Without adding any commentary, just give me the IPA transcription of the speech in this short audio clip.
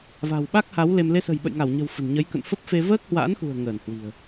va̤˨˩wɓa˦˥k̚ha˨˦w le˧m le˧sə̤˨˩j ɓə̰˧˨jŋa˧˩wɲə̤˨˩w fə̤˨˩nɲə˨˦j kə̰˧˨nfə˦˥p̚fe˧ vəː˦˥k̚hwa̰ː˧˥nxṳ˨˩ə̯ ŋəː˧˩nhwi̤˨˩ə̯

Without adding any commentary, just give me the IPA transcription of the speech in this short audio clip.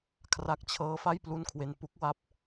kʰra˨˩k̚t͡ɕʰɤː˦˥fa˥˩j plu˥˩nkʰwe˧n pu˦˥k̚ wa˦˥p̚

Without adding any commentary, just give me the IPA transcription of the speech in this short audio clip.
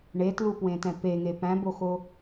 ɳetlupwẽtɛ̃ peŋe pæ̃boxo

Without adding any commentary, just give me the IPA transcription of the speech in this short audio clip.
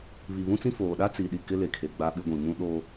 βi˨βũ˦t͡sĩ˦foː˨ ɗa˦t͡si˨ɗi˨ kɪ˦le˨ kʰe˨ɡ͡ba˦ɓɪ˦ɡʷĩ˨ mũ˦ɗo˦

